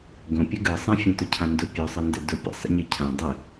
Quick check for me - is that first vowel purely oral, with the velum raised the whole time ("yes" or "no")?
no